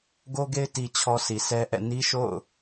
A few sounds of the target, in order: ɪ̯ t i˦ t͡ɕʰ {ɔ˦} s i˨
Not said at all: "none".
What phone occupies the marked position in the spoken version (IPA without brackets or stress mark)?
ɔ˦